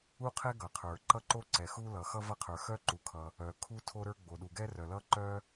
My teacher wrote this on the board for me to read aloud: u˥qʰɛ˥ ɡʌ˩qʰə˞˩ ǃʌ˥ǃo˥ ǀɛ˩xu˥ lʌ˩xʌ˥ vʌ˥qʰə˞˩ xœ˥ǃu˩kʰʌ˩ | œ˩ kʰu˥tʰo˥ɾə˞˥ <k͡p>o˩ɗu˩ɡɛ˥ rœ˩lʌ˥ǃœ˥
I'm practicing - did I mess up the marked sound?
yes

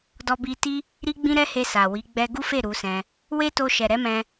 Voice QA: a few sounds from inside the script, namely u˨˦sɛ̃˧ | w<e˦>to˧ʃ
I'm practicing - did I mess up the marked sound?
no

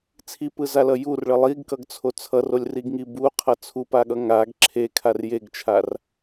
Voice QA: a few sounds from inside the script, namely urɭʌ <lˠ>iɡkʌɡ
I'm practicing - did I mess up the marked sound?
no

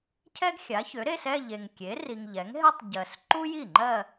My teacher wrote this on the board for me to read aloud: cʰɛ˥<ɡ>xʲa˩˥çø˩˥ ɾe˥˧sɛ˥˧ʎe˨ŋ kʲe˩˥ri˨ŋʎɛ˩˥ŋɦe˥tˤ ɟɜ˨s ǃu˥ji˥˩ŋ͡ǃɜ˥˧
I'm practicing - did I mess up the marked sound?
no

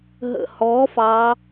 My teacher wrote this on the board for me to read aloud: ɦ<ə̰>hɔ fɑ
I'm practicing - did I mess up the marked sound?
no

